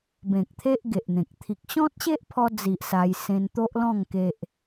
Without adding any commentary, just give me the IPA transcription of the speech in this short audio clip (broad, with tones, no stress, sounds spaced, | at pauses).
b ẽ˨ k̚ t̪ʰ e˦ ʔ ɡ e˨ ʔ n̪ ẽ˨ k̚ t̪ʰ i˨ k̚ ɕ ɔ̃˦ t̚ ɕ e˦ ʔ pʰ ɔ˧ d͡z i˨ ʔ s a˧ j s ẽ˧ n t̪ o˦ ʔ l ɔ̃˥˧ ŋ k e˦ ʔ